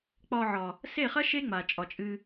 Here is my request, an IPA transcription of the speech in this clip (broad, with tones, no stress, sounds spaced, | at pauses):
k͡p ɒ˧ ʕ ɒ˨ | s e˦˨ χ ɐ˦ ʃ e˦ ŋ͡m a˨ t͡ʃʼ ɒ˨ t͡ʃʼ ɨ˧